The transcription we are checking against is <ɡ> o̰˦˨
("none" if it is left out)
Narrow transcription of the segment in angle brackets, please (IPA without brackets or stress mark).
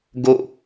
ɡ